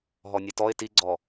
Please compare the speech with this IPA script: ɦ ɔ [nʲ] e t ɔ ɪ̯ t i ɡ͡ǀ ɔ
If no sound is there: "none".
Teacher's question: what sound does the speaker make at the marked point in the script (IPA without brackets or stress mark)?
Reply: nʲ